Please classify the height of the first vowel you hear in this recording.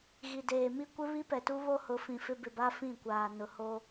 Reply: high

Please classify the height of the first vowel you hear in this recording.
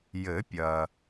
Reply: mid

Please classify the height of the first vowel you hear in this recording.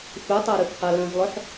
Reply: high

